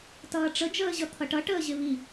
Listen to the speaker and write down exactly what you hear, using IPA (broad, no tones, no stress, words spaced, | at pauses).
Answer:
tʌːʈ͡ʂə d͡ʒəːʑʌt̪ʰʌʈʌ ʈəːʑɪβi